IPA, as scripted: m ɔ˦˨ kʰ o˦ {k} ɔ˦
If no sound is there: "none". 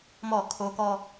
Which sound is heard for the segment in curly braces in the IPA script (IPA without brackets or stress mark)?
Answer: k